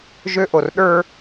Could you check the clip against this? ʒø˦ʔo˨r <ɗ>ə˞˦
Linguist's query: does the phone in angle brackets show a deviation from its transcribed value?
no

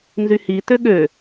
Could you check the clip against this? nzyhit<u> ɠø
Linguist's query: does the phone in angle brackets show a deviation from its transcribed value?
yes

